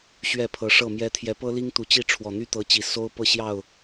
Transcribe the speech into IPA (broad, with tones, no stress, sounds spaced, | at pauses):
ɕ ɥ ɛ˥˨ pʰ ɤ˨˦ ʂ ɤ˥˨ m j ɛ˦ t̪ʰ j ɛ˨˦ p ɤ˦ l i˦ ŋ t̪ u˨˦ t͡ɕ i˥˨ ʈ͡ʂʰ w ɔ˨˩ n̪ y˦ t̪ ɤ˨˦ t͡ɕ i˨˩ s o˦ ʊ̯ p ɤ˥˨ ɕ j ɑ˥˨ ʊ̯